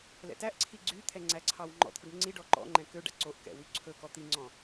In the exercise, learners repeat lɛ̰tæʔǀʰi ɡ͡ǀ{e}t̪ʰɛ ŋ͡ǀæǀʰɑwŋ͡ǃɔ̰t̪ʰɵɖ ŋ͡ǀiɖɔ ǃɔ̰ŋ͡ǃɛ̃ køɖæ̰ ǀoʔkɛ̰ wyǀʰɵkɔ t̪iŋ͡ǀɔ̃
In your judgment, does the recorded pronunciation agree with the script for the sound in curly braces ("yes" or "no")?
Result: no